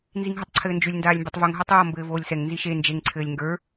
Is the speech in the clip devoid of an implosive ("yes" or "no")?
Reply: yes